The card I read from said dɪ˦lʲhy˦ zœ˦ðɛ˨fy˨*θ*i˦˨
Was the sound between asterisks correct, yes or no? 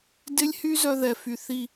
yes